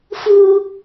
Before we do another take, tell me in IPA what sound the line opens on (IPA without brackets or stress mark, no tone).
f